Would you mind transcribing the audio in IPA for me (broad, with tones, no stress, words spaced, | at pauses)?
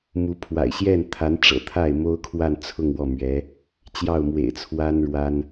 mu˧˥pʰwa̰˨˩ɪ̯ ɕjɛ˥˩nt̪ʰa˧˥nʈ͡ʂɤ̰˨˩ t̪ʰa˥˩ɪ̯mo˥ʊ̯kʰwa˥˧nt͡sʰʊ˥˧ŋ wɔ˥˩mɥɛ˧˥ | t͡ɕjɑ˥˩ʊ̯mwḛ˨˩ɪ̯t͡sʰwa˥n ɻwa˥n